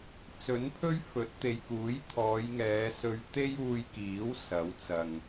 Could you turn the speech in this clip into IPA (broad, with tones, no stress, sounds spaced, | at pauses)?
t͡s ɵ˨˥ n pʰ ɵ˥ ɥ f ɵ˨˥ t̚ t̪ e˨ j k uː˨˥ j t̪ʰ ɔː˨˧ j ŋ ɛː˨˧ s ɵ˧ ɥ t̪ e˥ j uː˧ j k iː˨˥ w s ɐ˨˥ w t͡s ɐ˨ ŋ